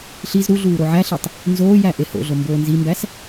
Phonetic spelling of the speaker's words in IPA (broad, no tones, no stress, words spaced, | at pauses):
ɬiz ɾuɮuː ɾoʕæɬitˤ | nzoːjæ ʔeho̰ɮo mboːnzimbæs